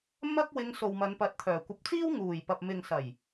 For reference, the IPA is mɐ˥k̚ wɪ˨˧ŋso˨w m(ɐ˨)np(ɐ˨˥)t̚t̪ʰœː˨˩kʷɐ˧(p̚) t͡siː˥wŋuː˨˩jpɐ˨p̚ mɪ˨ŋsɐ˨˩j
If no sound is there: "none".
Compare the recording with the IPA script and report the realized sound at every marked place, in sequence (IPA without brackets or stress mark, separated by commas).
ɐ˨˧, ɐ˨˥, p̚